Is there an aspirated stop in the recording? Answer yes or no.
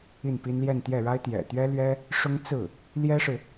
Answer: no